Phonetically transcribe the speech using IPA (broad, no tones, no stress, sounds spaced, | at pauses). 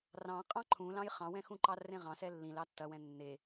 r ɑ̃ qʼ ɑ̃ ǃʰ ũ l ɑ̃ j χ ɑ̃ w ɛ̃ x ũ ǃ ɑ r ẽ ʁ ɑ̃ s ɛ lː ĩ l ɑ tː ɐ w ɛ̃ nː e